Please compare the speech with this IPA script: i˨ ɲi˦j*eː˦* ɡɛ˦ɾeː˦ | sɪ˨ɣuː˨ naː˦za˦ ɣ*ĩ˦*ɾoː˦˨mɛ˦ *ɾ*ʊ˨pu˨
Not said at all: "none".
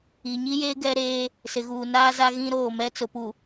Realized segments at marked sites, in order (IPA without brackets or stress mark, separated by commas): eː˦, ĩ˦, t͡s